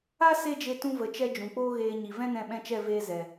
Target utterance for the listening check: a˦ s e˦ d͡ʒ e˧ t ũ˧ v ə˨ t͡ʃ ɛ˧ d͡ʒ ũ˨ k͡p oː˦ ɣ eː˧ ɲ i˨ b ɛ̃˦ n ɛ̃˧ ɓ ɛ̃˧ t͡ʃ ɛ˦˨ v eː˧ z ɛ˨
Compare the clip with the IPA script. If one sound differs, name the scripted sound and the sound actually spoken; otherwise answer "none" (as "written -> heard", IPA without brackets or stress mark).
b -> v